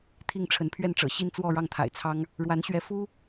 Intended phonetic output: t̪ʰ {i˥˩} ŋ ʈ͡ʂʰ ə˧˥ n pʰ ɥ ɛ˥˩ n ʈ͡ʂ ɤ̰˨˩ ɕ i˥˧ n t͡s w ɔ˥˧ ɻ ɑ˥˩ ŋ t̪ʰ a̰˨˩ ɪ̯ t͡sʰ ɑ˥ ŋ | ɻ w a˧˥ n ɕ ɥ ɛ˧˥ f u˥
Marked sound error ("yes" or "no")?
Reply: no